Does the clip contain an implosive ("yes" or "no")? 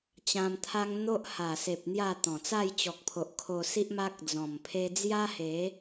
no